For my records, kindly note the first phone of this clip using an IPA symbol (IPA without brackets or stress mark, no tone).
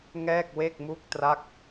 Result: ŋ